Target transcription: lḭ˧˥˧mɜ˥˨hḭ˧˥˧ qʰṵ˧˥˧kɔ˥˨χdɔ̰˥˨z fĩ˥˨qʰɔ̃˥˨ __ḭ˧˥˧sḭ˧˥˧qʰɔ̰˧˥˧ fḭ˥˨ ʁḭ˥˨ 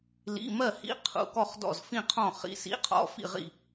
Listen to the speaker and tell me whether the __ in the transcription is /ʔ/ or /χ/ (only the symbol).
χ